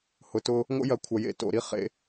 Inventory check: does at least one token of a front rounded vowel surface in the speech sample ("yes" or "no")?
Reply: no